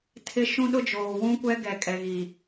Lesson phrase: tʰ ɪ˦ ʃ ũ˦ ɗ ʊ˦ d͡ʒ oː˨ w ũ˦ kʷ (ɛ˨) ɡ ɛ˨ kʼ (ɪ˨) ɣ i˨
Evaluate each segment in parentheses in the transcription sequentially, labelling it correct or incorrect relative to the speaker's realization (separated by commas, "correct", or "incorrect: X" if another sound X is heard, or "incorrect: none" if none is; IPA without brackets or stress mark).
incorrect: ɛ˦, incorrect: ɛ˨